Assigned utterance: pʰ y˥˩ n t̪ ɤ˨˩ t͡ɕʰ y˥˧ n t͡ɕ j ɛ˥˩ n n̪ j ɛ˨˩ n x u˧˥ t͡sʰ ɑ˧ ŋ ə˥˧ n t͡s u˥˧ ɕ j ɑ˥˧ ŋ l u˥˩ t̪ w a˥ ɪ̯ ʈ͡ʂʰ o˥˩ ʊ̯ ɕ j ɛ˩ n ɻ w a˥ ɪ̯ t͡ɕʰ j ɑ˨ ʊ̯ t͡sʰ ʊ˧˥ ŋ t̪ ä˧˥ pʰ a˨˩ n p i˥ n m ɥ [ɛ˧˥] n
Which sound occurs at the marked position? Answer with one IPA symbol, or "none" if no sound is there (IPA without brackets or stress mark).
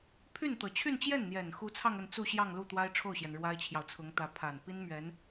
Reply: ɛ˧˥